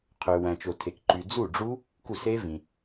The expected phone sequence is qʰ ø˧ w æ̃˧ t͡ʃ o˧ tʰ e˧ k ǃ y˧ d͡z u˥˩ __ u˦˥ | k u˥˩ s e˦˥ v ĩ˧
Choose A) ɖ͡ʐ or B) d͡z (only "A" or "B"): A